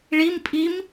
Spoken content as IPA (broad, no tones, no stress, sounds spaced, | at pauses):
ɭ i m pʼ i m